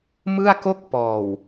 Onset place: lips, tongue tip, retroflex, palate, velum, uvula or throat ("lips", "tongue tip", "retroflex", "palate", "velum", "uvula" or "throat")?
lips